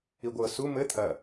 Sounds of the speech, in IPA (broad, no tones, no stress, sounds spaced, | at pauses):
i ɡʷ ɤ s u m ɘ t̪ʰ ɐ